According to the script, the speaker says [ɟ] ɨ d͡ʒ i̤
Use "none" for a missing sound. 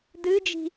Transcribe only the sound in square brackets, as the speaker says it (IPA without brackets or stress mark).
d